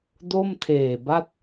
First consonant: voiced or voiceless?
voiced